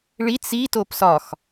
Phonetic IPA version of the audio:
ɭit͡s itop sɒx

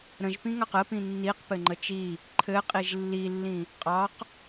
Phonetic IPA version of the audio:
ɾə̃ʒpĩŋɑq əpĩ nːiqpɘŋ͡ǃə t͡ʃi | ǃʰɘqʼiʒ lːilːĩ | qʼɑq

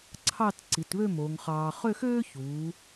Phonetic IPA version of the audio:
ǀʰɑ˥˧tǀi˩˧tβø˥˧ mo˩˧ŋχɑː˧ χø˥˧xøː˥çuː˩˧

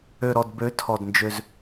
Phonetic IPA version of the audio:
ø˨ɾɔ˨dbø˨˦tʰɔ˨d nd͡ʒø˦z

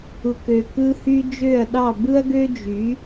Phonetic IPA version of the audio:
u˨kø˨ kɯ˧hy˧ d͡ʒø˦˨ɐ̯ɗɑ˦˨bɯ˦ɐ̯ɡø˦ d͡ʒy˨˦

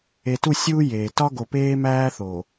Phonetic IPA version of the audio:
e˨tu˦˨sʲuː˦ jeː˨ tɒ˦ɡo˨peː˦ mæː˦θo˨

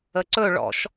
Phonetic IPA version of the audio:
əǀɵ ɭɔ̰ʃ

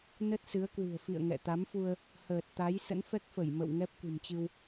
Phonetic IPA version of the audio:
nə˦˥t̚sɨ˨˦ə̯kwɨ̤˨˩ə̯fḭ˧˨ə̯ ŋɛ̰˧˨t̪a˨˦mfu˧ə̯ | həː˨˩t̚ t̪a˨˦j sə̰˧˥nfɛ˦˥k̚fə˧˩jmə̰˧˨w ŋɛ˦˥p̚kɨ̤˨˩mt͡ɕɨ˧w

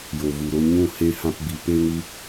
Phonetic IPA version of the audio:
jo˨vu˨ɾo˧ ɲũ˦˨ he˧ hã˧pbi˨ pe˧ŋɨ˧

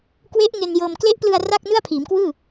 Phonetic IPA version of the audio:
kwe˦˥ʔ ŋe˧njɤː˧m kle˦˥ʔplɯ˧a̯ ra˥˩k̚ nɯ˥˩a̯pʰiː˩˦mkwɯː˥˩

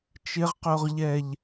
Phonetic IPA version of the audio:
t͡ʃɪʁqoʁʎɛʎ

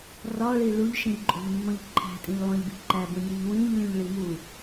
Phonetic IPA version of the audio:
rɒɭi ɭuʎʃĩʎǃʼo̤ʎmːõʎ ǃʰæ̤tʼĩʎlˠõʎbi̤ ǃæbũnʲuʎ wĩʎlʲũʎɭi mu

